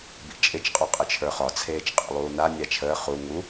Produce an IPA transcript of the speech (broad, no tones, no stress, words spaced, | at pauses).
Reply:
bḭt͡ʃʼɪt͡ʃ qʼɒqʼɪt͡ʃʰə˞χɒ t͡sʰeːt͡ʃqʼḭlˠuːna nʲat͡ʃʰəː χu ŋu